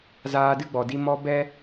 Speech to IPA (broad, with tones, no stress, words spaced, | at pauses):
zaː˧ dɨ˦ɡ͡bɔ˨di˧ mɔ˧ bɛ˦